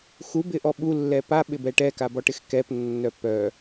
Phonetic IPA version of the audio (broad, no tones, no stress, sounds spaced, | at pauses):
x u b ɪ ʔ ɔ ɓ u lː ɛ p a ɓ ɪ b ɛ ʈ ɛ k a b ɔ ʈ ɪ x k ɛ p nː œ p œ